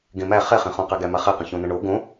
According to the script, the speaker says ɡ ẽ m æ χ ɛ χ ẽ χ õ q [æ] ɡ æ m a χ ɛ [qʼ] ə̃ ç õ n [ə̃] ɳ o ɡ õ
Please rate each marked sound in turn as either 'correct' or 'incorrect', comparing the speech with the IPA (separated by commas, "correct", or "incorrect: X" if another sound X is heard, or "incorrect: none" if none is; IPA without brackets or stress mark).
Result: correct, incorrect: q, correct